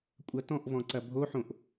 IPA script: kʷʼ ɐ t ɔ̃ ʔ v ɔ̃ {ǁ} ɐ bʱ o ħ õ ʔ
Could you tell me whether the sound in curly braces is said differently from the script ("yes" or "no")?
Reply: yes